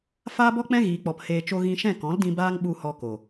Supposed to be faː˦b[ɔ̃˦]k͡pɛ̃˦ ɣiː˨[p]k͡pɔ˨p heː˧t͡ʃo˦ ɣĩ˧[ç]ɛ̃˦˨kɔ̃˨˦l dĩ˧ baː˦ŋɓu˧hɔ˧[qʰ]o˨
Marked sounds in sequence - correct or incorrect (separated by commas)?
incorrect, incorrect, incorrect, incorrect